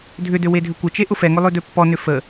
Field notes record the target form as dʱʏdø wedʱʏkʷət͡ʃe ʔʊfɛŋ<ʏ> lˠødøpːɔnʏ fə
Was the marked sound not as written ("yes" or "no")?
no